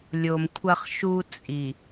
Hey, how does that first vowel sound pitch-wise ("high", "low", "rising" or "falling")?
low